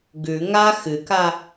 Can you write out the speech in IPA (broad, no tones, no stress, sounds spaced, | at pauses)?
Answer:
ɡ ʉ ŋ a x ɨ k a